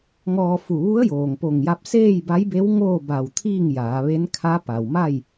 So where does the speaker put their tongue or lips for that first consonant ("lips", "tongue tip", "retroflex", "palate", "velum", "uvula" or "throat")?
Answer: velum